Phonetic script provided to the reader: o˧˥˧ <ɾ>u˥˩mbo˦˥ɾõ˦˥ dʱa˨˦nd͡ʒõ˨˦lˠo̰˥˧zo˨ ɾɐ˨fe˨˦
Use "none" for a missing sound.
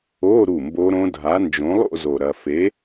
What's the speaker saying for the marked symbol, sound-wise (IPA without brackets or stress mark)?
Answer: ɾ